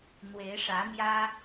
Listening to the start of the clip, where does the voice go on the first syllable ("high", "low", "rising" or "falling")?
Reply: rising